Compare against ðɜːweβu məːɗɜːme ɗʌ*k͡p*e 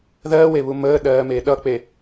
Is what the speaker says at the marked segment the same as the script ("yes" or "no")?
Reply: yes